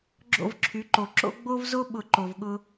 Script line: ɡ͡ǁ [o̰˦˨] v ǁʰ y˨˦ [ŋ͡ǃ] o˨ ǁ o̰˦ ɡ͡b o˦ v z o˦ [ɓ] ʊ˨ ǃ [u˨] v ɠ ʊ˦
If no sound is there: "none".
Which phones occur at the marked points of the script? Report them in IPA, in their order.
o̰˦˨, ǃ, ɓ, o˨

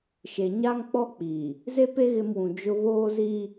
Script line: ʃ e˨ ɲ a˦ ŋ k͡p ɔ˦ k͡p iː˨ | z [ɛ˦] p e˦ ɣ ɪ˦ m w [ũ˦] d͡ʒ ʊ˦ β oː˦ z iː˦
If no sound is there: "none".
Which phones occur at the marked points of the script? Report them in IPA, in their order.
e˦, ũ˨

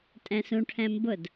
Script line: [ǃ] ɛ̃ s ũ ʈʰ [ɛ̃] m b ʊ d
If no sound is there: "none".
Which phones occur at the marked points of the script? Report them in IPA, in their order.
tʼ, ɛ̃

